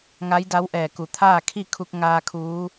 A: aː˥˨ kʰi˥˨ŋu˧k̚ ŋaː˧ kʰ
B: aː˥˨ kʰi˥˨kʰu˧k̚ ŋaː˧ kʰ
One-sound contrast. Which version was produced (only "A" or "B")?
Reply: B